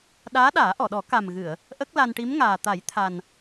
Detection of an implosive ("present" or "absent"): present